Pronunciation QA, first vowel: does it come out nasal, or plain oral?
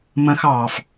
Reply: nasal